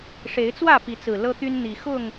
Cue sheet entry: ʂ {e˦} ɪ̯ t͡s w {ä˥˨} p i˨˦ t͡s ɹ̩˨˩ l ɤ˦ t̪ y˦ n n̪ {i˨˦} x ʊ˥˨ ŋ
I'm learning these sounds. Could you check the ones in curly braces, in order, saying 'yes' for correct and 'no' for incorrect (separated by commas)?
no, yes, no